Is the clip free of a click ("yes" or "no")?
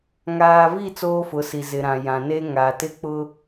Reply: yes